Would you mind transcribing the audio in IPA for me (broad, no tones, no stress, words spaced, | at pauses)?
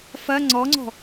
fɐ ŋ͡ǀɔŋ͡ǀɔ̤